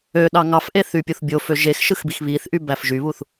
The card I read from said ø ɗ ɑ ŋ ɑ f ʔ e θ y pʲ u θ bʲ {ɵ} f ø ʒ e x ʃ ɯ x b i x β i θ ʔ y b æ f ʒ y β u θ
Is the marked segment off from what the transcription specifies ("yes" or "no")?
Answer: yes